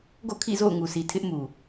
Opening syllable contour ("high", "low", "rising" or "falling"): falling